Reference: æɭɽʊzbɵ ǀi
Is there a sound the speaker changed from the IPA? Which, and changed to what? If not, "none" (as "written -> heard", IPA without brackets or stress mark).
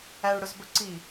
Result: none